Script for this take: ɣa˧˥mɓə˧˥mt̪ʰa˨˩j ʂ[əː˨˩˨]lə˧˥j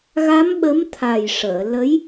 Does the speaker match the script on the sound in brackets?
yes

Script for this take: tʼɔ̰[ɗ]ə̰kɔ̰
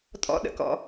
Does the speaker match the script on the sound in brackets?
yes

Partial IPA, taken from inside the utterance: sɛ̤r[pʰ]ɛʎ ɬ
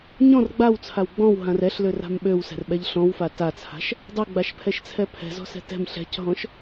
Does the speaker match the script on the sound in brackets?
no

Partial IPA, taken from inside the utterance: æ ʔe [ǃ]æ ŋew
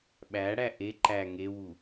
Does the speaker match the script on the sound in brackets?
yes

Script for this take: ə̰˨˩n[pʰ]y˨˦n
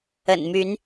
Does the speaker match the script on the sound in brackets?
no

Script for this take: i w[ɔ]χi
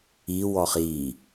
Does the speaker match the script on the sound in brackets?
yes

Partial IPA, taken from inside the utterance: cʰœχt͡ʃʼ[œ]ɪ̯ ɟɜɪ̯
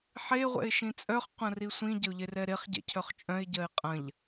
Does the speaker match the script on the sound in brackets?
no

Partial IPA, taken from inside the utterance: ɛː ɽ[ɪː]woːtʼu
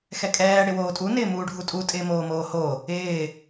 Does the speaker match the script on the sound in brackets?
no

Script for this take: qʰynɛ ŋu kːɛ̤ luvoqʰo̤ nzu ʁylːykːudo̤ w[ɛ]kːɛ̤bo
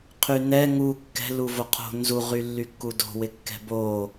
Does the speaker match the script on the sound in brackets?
no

